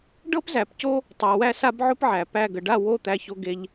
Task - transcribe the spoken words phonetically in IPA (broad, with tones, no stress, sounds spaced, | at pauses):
ɖ ɤ˦ p z æ˨ p c o˦ | tˤ a˨ w æ˦ s a˦ b ʕ ʊ˦ p ʕ æ˨ p æ˦˨ ɡ ə˨ ɖ a˦˨ w o˦˨ t̪ æ˦ ç o˦ ɡ e˦ ʎ